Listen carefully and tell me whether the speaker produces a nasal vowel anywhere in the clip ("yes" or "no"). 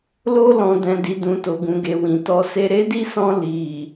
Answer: yes